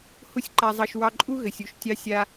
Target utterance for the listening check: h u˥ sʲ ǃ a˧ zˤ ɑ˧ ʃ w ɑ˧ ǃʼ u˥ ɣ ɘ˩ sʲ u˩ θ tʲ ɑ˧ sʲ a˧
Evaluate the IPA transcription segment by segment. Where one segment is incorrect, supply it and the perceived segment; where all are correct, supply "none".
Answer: θ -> ʃ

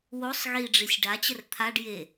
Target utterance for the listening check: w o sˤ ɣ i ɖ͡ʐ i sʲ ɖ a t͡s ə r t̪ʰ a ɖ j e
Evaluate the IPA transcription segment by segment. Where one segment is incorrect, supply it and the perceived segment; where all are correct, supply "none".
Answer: t͡s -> t͡ɕ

